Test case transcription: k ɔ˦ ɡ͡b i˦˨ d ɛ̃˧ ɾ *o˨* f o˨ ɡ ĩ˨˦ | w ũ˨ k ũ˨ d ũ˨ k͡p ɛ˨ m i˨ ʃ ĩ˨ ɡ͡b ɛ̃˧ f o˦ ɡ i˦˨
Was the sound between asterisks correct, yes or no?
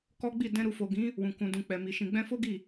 no